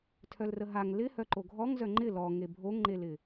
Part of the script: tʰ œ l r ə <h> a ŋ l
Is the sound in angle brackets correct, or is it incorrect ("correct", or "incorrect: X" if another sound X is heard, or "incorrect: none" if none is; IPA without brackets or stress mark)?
incorrect: ɦ